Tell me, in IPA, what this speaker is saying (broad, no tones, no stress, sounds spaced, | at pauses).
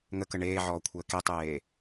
ŋ ə k ə ɳ eː ʕ ɔː kʷʰ əː k e tˤ eː